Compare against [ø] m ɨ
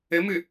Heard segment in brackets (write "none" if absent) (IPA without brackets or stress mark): ɘ